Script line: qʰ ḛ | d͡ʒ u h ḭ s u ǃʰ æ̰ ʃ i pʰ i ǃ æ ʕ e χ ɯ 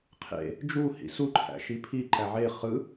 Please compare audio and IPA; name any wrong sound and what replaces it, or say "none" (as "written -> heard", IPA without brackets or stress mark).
none